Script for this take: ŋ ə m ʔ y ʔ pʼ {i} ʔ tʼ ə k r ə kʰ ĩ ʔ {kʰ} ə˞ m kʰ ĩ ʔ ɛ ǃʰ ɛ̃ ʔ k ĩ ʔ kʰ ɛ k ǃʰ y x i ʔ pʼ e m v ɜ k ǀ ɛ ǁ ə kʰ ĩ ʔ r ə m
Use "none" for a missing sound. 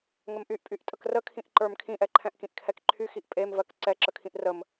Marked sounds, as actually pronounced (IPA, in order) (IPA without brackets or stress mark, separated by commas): y, ǃ